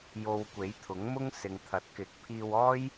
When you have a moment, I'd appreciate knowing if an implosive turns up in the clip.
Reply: no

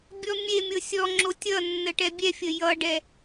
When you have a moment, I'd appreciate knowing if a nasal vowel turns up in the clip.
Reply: no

